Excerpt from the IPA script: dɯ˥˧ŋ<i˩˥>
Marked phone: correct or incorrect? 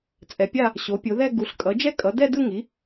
correct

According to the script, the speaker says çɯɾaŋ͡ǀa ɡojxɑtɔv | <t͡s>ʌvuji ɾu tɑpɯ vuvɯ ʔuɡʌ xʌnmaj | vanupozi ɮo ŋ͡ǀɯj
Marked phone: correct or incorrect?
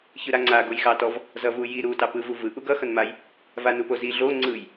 incorrect: z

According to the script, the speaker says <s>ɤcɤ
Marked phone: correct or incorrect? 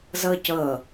incorrect: z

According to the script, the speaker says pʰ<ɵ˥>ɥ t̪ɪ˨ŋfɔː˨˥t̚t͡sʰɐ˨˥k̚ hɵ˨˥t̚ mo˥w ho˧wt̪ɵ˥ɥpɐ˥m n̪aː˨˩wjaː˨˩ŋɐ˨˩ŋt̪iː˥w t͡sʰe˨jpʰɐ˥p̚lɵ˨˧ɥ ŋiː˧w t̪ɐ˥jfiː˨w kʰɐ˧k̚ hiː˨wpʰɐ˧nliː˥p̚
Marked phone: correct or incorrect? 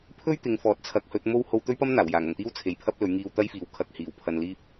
correct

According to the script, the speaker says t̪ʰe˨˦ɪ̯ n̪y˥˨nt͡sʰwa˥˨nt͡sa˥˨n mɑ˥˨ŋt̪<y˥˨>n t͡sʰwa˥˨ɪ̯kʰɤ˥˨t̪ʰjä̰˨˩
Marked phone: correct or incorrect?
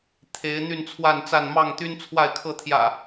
incorrect: y˦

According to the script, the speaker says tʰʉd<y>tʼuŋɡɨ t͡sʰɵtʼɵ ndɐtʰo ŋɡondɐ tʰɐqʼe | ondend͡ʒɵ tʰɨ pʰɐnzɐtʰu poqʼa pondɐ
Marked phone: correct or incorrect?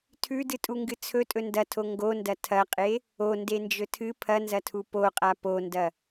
incorrect: ɨ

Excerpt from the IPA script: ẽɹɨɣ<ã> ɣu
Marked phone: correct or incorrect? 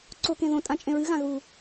correct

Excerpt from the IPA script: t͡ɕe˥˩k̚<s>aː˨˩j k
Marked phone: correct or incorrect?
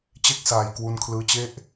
correct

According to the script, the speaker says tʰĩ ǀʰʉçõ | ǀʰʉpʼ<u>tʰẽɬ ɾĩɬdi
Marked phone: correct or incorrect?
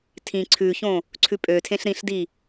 incorrect: ø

